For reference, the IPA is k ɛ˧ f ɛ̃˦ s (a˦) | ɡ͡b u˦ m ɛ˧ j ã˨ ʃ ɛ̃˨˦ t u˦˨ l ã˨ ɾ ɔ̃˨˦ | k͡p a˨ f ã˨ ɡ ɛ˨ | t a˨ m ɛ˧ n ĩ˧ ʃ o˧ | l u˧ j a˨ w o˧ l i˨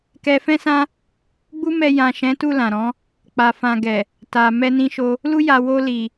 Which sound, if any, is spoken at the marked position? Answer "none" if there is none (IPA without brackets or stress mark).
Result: ã˦